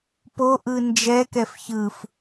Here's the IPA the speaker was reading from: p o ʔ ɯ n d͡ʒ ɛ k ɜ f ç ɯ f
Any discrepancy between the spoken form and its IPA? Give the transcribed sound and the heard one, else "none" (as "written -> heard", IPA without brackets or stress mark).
ɜ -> ɛ